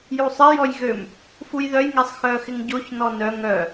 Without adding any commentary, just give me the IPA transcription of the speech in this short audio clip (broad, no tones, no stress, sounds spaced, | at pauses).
j u sˤ ɪ j ɔ j ɣ ø m | f u j ð œ j ŋ e sˤ x œ x ɪ ŋ ɟ o ç n ɔ n œ ŋ œ